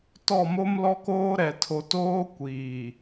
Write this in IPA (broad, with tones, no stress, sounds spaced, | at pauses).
t ɔ˦˨ m o˦ m l ɔ˦ k oː˦ ɾ ɛ˨ tʰ o˨ t oː˦ kʷ iː˨